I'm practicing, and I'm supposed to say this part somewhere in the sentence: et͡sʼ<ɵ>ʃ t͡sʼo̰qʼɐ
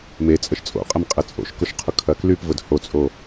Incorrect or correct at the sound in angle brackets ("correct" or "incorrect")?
incorrect